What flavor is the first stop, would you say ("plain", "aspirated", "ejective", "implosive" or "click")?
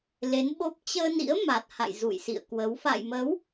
implosive